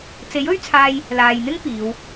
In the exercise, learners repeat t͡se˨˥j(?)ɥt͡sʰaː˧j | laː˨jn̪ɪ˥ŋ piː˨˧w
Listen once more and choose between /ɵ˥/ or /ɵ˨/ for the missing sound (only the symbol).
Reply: ɵ˥